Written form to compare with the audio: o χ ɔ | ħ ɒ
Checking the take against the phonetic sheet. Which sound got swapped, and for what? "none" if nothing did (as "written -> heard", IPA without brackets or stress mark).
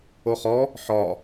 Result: none